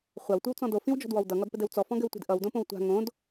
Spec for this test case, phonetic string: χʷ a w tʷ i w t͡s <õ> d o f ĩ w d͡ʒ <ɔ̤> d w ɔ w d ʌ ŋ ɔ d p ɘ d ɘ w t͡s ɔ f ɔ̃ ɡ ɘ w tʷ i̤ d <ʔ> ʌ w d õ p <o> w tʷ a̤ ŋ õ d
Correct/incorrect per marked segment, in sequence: incorrect, correct, correct, incorrect

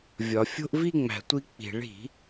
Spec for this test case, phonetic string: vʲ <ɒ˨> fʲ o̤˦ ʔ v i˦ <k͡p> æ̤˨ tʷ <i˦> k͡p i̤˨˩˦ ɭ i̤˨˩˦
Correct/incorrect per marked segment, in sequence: correct, incorrect, correct

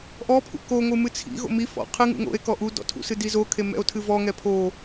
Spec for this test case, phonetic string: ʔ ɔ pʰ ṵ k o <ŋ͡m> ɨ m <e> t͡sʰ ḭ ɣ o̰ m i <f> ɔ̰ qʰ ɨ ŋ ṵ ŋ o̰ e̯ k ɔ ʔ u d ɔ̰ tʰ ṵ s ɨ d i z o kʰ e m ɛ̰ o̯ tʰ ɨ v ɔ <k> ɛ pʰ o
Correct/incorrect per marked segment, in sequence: incorrect, incorrect, correct, incorrect

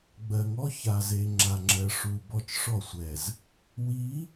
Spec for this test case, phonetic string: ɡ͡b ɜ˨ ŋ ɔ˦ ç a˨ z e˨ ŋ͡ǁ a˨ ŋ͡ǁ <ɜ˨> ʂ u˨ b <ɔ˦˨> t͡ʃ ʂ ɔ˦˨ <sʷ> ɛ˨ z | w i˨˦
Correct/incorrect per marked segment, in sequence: correct, correct, correct

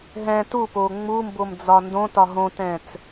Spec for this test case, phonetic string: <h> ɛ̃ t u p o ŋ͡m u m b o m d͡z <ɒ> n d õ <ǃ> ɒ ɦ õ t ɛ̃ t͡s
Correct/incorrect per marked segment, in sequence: incorrect, correct, incorrect

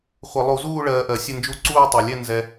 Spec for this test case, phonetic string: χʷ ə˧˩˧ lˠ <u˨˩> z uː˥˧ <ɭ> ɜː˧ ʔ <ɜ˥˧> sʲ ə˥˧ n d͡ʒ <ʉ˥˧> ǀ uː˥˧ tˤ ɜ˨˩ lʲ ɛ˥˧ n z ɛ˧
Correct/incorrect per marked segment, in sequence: incorrect, correct, incorrect, incorrect

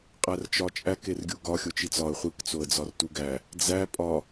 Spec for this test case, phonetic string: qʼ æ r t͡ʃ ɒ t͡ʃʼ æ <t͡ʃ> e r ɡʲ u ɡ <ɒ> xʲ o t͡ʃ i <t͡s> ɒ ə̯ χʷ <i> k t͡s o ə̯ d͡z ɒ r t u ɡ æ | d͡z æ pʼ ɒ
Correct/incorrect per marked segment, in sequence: incorrect, correct, correct, correct

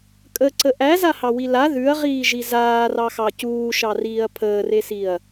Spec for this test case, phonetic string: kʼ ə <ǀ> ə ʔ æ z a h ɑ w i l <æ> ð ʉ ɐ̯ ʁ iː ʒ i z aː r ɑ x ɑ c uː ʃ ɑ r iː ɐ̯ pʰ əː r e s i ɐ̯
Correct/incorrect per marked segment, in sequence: correct, incorrect

